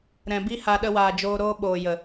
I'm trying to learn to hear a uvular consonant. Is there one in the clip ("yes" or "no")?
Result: no